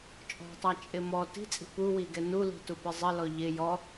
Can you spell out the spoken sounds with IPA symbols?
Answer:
t͡ʃʼ ɔ̤ tˤ æ t͡ʃʼ ɪ m ɔ t i̤ t͡sʼ i̤ p u w i ɡ ɛ n u l i̤ t u p ɪ zˤ ɪ l ɔ ʎ ɪ j ɔ

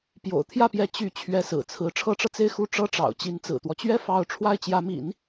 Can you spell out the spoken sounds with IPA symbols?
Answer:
p j o̰˨˩ ʊ̯ t̪ʰ j ä˥˩ p j ɛ˧˥ t͡ɕ y˧˥ t͡ɕʰ ɥ ɛ˧˥ s ɹ̩˨˩ t͡sʰ ɹ̩˧˥ ʈ͡ʂʰ ɤ˧˥ ʈ͡ʂ ɤ˧ t͡s e˥˧ ɪ̯ x u˥˩ ʈ͡ʂ ɤ˥ ʈ͡ʂ ɑ̰˨˩ ʊ̯ t͡ɕ i˧˥ n t͡s ɹ̩˨˩ t̪ w ɔ˦ t͡ɕ ɥ ɛ˥ f ɑ˥˧ ʊ̯ ʈ͡ʂʰ w a˥˩ ɪ̯ t͡ɕ j ä˧˥ m ḭ˨˩˦ n

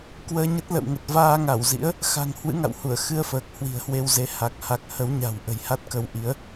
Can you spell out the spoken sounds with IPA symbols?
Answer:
k w əː˧ ɲ ə˦˥ t̚ l ə̰˧˨ w ŋ ə˨˩ t̚ v aː˧ ŋ a˧˩ w z ḭ˧˥ ə̯ | x a̤˨˩ ŋ h w ɨ̰˧˥ ŋ a̰˧˨ w h u˧˩ ə̯ x ɨ˧ ə̯ f əː˨˩ k̚ h w i̤˨˩ ə̯ h w e˧ w z e˨˦ h a˨˩ k̚ h a˨˩ k̚ h ə˨˦ w ɲ a̤˨˩ w ʔ ə̤˨˩ j h a˦˥ t̚ k ə˧ w ʔ i˨˦ ə̯

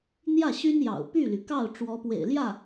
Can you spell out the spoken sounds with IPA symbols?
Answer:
n̪ j ä˥˩ ɕ y˥ n j ɑ̰˨˩ ʊ̯ p y˥˩ l y˩ k ɑ˥˩ ʊ̯ ʈ͡ʂ w ɔ˧˥ p w ḛ˨˩ ɪ̯ l j ä˥˩

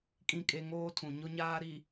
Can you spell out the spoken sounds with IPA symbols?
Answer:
kʼ ĩ˨ kʼ e˨ ŋ oː˦ tʰ ũ˨ ɲ ʊ˨ ɲ aː˨ ɾ i˨

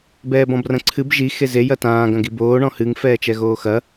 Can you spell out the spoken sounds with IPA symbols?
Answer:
b ɛː b ɔ̃ b r ɐ̃ ǀʰ ɨ b ʒ i x e z e j ɐ t ãː ɡ ɐ̃ ɡ i b oː ɳ ɔ̃ h ɨ ŋ f ɛː t͡ʃ ɛ ɣ oː x ɐ

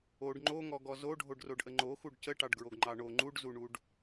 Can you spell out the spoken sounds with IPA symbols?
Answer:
o ɖ ŋ͡ǃ o ŋ ɔ ɡ ɔ z o ɖʱ o ɖ r o ɖ ʔ ə ŋ͡ǃ o x u ɖ c ə ʈ ɑ ɖ ɡ ɹ o ɡ ŋ͡ǃ ɑ ɳ o ŋ͡ǃ u ɖ z u ɳ u ɖ

